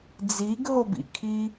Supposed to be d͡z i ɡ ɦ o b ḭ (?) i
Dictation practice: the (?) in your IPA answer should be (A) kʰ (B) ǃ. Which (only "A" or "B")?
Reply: A